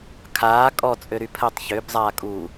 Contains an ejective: yes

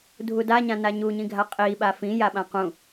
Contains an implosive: yes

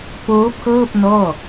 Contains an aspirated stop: yes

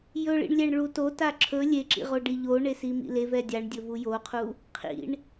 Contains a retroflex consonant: yes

